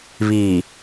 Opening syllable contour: low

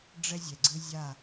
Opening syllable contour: high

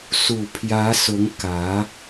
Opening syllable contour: low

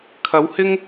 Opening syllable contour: rising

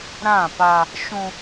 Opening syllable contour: falling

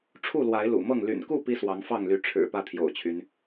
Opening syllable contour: falling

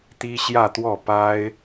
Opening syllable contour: high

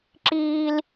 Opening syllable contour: high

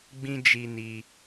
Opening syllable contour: high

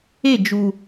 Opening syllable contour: falling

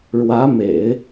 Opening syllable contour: rising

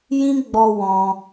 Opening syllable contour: high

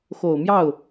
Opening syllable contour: low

